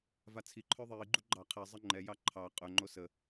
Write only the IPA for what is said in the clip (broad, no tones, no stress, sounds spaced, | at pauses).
v a t͡sʰ i ǃʰ œ ðˤ iː ɡ͡ǃ u ɡ͡ǃ ɑ qʰ ɛ zˤ ə ŋ͡ǃ ɛ j ɑ ǃʰ ɑ qʼ œ ŋ͡ǃ o s ə